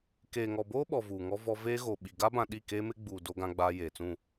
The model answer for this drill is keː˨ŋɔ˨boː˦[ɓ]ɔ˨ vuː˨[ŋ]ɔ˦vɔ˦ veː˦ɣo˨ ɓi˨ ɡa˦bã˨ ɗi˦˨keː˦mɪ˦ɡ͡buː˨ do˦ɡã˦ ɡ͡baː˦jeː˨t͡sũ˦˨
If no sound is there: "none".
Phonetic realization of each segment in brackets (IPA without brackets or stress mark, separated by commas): ɓ, ŋ